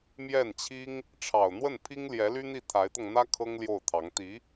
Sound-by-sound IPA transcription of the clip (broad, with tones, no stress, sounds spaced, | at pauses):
m j ɛ˥˩ n t͡ɕʰ i˥ ŋ | ʈ͡ʂʰ ɑ˨˩ ʊ̯ n̪ w ə˥˩ n pʰ i˥ ŋ l j ɛ˧˥ l y˥ n̪ i˥˩ t̪ʰ a˧˥ ɪ̯ t̪ ɤ˧ ŋ n̪ ä˥ kʰ ɤ˥ ŋ l j o˥˩ ʊ̯ t̪ʰ ɑ˧˥ ŋ t̪ i˧˥